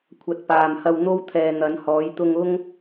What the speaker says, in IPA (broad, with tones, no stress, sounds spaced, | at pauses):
kʷʰ ɐ˨˥ t̚ p aː˨ m h ɐ˧ w n̪ o˥ w t̪ʰ ɛː˨ n̪ ɐ˨˥ n h ɔː˨˥ j t̪ ʊ˧ ŋ ʊ˥ ŋ